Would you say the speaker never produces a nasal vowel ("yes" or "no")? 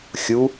yes